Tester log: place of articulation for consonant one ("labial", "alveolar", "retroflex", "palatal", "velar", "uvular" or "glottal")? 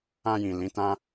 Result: palatal